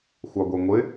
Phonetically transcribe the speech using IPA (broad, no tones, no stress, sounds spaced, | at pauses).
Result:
xʷ ɑ ɡʷ ɛ ŋʷ ɪ